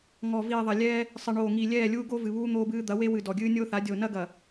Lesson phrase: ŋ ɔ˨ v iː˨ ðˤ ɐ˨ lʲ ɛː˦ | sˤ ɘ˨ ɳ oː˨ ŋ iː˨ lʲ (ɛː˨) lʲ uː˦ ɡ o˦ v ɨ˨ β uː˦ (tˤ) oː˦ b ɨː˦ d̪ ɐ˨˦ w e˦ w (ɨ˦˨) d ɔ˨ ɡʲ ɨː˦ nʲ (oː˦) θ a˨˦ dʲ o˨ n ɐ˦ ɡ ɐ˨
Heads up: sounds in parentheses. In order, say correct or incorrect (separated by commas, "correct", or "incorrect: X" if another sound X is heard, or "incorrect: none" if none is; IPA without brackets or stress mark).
incorrect: ɛː˦˨, incorrect: n̪, incorrect: ɨ˨, correct